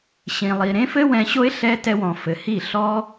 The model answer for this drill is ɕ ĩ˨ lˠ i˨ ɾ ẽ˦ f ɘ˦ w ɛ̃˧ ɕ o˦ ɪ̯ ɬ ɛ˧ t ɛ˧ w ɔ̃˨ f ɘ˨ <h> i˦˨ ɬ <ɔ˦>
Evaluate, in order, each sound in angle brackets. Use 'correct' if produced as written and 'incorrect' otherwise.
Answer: correct, correct

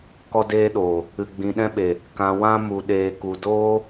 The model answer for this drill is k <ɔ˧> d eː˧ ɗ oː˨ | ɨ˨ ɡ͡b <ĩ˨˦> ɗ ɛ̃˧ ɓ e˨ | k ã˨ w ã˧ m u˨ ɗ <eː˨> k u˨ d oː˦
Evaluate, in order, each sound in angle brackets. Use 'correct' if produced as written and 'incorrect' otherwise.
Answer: correct, incorrect, correct

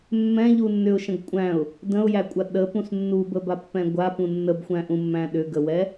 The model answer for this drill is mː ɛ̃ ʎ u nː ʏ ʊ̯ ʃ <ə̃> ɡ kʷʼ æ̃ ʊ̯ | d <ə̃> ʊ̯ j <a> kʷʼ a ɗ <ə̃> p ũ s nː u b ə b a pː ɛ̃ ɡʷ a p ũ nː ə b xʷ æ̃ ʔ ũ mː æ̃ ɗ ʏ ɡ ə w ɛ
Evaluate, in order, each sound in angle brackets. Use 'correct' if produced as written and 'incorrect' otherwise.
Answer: correct, correct, incorrect, incorrect

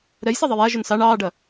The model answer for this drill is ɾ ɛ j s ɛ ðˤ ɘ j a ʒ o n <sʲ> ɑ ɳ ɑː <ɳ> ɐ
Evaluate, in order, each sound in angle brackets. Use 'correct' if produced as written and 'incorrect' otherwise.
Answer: incorrect, incorrect

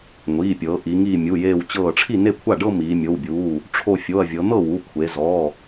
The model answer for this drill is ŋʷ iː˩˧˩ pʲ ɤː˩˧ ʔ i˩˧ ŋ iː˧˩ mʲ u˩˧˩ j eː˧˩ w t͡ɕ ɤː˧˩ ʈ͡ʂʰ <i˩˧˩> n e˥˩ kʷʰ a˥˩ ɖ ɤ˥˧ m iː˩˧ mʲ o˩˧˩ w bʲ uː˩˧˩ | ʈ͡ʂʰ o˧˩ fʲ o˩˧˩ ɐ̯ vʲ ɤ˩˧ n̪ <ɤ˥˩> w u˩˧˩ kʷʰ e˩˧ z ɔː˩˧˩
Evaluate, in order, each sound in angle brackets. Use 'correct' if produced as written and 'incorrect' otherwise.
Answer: incorrect, correct

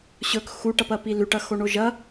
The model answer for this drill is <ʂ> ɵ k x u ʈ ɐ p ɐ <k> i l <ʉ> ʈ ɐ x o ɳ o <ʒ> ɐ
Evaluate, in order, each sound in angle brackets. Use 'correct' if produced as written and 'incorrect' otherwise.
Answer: incorrect, incorrect, correct, correct

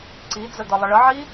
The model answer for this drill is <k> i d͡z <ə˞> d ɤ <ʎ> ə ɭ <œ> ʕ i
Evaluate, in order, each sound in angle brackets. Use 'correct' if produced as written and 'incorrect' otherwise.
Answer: incorrect, incorrect, incorrect, incorrect

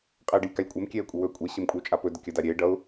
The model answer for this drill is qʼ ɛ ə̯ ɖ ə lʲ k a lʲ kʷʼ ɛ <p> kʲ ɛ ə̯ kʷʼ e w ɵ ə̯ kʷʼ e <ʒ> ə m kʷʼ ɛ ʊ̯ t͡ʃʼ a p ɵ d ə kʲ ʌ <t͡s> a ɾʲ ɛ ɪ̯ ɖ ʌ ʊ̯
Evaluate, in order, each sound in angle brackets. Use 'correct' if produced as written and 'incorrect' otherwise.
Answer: incorrect, incorrect, incorrect

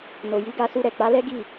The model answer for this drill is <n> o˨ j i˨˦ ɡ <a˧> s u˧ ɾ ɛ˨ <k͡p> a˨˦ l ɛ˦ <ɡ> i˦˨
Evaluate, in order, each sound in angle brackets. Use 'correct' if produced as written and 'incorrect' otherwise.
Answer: correct, correct, correct, correct

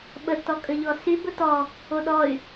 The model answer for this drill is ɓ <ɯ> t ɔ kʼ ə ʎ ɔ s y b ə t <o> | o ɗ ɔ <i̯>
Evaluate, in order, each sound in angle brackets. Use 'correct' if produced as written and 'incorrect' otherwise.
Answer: incorrect, incorrect, incorrect

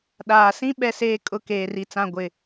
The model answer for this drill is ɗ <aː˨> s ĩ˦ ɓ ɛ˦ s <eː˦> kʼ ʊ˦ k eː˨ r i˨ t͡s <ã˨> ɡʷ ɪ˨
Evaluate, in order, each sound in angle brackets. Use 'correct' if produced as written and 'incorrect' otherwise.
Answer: correct, correct, incorrect

